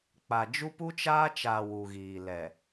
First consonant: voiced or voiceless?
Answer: voiceless